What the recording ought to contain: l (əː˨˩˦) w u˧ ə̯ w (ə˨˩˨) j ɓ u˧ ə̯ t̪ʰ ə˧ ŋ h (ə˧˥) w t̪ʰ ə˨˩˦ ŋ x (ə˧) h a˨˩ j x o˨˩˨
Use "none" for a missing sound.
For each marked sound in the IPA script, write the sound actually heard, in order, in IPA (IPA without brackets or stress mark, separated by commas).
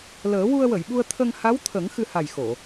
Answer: əː˨˩˦, ə˨˩˨, a˧˥, ɨ˧